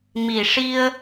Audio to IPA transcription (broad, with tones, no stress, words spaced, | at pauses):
mi˨˩ʂi˧ə̯